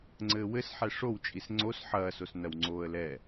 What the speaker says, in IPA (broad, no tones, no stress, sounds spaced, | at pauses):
ŋ͡ǀ ɘː w ɘ s ħ ɛ ʂ o w t͡ʃʼ i s ŋ͡ǀ o s ħ ɐː s o s n ɐ w ŋ͡ǀ oː ə̯ l ɛ